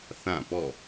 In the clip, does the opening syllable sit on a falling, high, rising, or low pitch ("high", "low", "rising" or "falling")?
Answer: falling